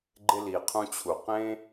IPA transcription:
ɡ͡ǃ ɪ˧ l i˨ qʰ ũ˧ t͡ɕʰ u˨ q ẽ˦

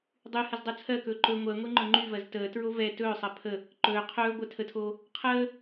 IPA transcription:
dˤ y h ə z dˤ u t͡sʰ ɜ k ɵː ǃ ɵ ŋʷ ɜ ŋʷ e ŋ͡ǃ ɵ ŋ͡ǃ y v ɜ z t əː t ɹ o v ɛ t ɵː sˤ ɜ pʰ ə | ǃ ɵː qʰ ɵː ɡʷ ɜ tʰ ə tʰ oː | qʰ əː

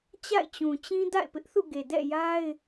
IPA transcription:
t͡ɕ a̰˦˨ ɪ̯ t͡ɕ ũ˨ t͡ɕ ĩ˦ d a̰˦˨ ɪ̯ p ɪ˦ ʔ θ ṵ˦˨ ɡ e˨ d ɛ̰˦˨ j a˦ ɪ̯

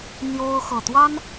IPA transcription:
n̪ j o˦ ʊ̯ x ɤ˨˩ t̪ w a˦ n

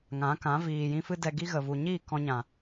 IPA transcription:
ŋ ã˨˦ k ã˨˦ v iː˨ j ĩ˧ f ɨ˦ d ɛ˧ ɡ i˦ ɣ ə˨ v u˨ ɲ iː˦˨ k ɔ̃˧ ɲ ã˨

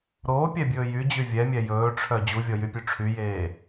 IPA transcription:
ɾ oː pʲ ɛ bʲ ɵː j y d͡ʑ y vʲ ɛ mʲ ɛ j ɵː ʈ͡ʂʰ œ d͡ʑ u vʲ ɔ j y pʲ ʉ ʈ͡ʂʰ y j eː

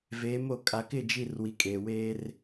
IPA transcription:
v eː˨˦ m o˨ kʼ a˨ k ɪ˦˨ d͡ʒ i˦˨ r w i˨ kʼ eː˨ w eː˦ r

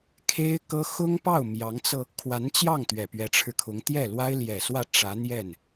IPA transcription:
kʰ e˥ ɪ̯ k ɤ˥ x ʊ˥ ŋ p ɑ˥˩ ʊ̯ m j ɑ˧˥ ŋ t͡s ɤ˧ | kʰ w a˧˥ n t͡ɕ j ɑ˥˩ ŋ t̪ ɥ ɛ˨˩ p ɥ ɛ˧˥ ʈ͡ʂʰ ɻ̩˧ kʰ ʊ˧˥ ŋ t̪ j ɛ˥˩ l w a˥ ɪ̯ l j ɛ˨˩ s w ä˥˩ ʈ͡ʂ ä˧˥ n̪ j ɛ˥˩ n

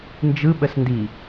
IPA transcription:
n d͡ʒ ɯ ɓ ə s n d i

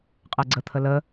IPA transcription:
qʼ ɛ ɡ͡ǀ ə t̪ʰ ə l ə

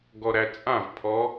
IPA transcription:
ɡ ɔ ɾ æ t͡sʼ ã v pʰ ɔ

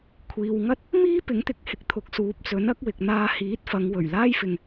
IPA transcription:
kʷʰ iː˨ w ŋ ɐ˥ t̚ | m iː˥ p ɪ˨˥ ŋ t̪ ɪ˨˥ k̚ h ɪ˧ k̚ t̪ʰ ʊ˨ k̚ s uː˨˥ p̚ t͡s ɵ˨˥ n ɐ˨˥ k̚ w ɪ˨ k̚ n̪ aː˧ h iː˨˥ t̚ f ɐ˨˧ ŋ w ɵ˨˩ ɥ l aː˥ j f ɪ˨ ŋ

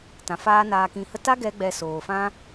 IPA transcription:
t ã˨ f aː˦ n aː˧ k ĩ˧ h ə˧ t a˦ ɡ ɛ˦ ɡ͡b ɛ˧ s oː˨ f ã˦

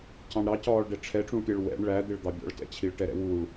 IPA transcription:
c ɑ̃ ɳ ɾ ɑ c ɒː ɭ ɖ ɛ ʈ͡ʂʰ ɛ ʈ͡ʂ ũ ɭ pʲ ɛ ɭ w ɛ̰ ɳ ɭ æ d̪ ɪ ɭ d̪ ɑ bʲ ɔ̰ ɭ t ɛ̰ t͡ɕʰ i ɭ ʈ ɛ ɾ ɛ̰ w uː ɭ

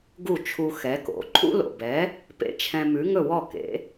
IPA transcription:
ɡ u˥˩ t͡ʃʰ u˧ x ɛ˩˥ k o̰˩˥ ǃʰ ṵ˥ l o̰˩ b ɛ˩˥ | p ḛ˧ t͡ʃʰ ɛ̃˧ m ʉ˩˥ ŋ ɵ˥˩ w ɔ˥˩ k ḛ˩˥

